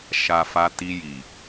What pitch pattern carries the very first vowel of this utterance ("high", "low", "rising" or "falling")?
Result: low